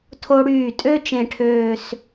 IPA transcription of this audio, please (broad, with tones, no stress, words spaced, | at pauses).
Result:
tʰo˧ɽyː˧˩tʼø˥˧ t͡ʃẽ˥˧ʈʰøː˥˧s